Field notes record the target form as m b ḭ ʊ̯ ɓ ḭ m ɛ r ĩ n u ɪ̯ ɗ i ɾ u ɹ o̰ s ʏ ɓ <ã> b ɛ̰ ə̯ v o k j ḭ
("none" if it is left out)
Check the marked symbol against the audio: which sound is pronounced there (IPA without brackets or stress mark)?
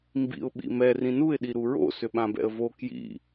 ã